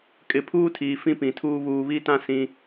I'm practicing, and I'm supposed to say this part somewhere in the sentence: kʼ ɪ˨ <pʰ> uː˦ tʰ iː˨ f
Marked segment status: correct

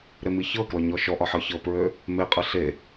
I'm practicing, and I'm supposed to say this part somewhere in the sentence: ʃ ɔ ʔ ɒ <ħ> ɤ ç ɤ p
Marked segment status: correct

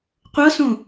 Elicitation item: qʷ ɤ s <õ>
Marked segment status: correct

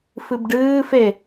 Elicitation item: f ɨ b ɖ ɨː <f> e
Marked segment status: correct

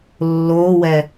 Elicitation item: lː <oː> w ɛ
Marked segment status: correct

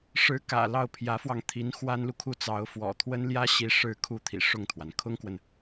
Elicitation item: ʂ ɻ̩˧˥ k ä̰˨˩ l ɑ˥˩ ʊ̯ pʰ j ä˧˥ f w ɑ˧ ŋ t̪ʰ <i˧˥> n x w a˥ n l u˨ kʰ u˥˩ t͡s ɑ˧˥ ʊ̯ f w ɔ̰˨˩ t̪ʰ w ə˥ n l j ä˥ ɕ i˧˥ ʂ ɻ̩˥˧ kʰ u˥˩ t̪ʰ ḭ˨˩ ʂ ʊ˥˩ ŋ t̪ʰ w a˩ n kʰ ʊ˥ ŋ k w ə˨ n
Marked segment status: correct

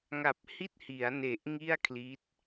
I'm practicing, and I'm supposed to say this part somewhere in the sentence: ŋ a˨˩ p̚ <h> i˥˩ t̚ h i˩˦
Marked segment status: correct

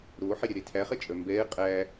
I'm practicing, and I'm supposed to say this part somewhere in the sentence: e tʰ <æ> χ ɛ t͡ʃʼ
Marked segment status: correct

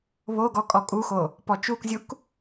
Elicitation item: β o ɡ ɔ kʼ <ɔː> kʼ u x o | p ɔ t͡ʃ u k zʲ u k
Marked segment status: incorrect: ɔ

